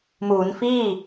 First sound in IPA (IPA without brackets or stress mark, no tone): m